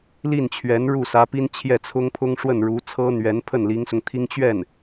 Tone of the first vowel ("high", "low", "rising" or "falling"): falling